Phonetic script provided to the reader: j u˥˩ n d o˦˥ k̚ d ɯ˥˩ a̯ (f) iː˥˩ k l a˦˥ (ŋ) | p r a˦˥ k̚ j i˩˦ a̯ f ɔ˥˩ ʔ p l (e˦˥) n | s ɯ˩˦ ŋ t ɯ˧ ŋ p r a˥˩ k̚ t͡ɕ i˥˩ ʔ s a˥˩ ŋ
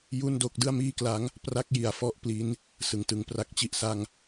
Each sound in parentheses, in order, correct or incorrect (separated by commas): incorrect, correct, incorrect